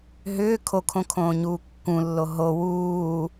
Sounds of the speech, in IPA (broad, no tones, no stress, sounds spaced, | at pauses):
ɦ ʏː kʰ o kʰ õ kʰ õː ɲ uː kː ũ lː o ɦ o w uː